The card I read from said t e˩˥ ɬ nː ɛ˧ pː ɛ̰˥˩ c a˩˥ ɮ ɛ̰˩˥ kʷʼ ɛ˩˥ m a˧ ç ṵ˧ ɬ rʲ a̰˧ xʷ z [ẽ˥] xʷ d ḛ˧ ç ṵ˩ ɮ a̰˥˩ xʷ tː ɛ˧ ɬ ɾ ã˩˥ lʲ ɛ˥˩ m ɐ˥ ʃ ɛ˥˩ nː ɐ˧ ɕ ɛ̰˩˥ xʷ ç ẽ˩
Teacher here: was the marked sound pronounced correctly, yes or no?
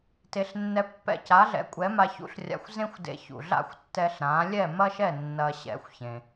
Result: yes